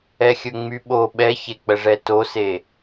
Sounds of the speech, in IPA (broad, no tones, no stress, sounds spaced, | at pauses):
ɛ xʲ ɵ ŋ͡m y ɓ o ɓ ɛ ç e k͡p ə ʐ ɛ t o s e